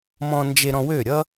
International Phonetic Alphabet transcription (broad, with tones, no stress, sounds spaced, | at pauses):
m ɔ̃˧ n d͡ʒ e˧ ɾ ɔ̃˧ w ø˦˨ ɾʲ ʌ˦